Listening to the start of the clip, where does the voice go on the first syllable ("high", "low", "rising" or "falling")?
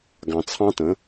low